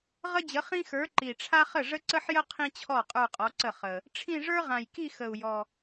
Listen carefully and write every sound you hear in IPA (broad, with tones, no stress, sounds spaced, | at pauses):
ʁ ə˥ d͡ʑ ə˨˥ χ ĩ˥ x ə˞˨˥ ǃ i˨˩ ʈ͡ʂʰ a˥ χ ə˥˩ ʐ ə˥ ǀ ə˥ ħ j ə˥ qʰ ĩ˥ t͡ɕʰ ɔ˥˩ qʼ ə˞˥˧ qʼ ɔ˨˥ ǀ ə˥˩ χ ə˨˩ | ʈ͡ʂʰ ĩ˥˧ ʐ ə˞˥ ʁ ã˨˩ j k i˥˧ x ə˨˩ u̯ j ɔ˨˩